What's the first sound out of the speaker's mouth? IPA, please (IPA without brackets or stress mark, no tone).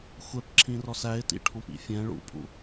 xʷ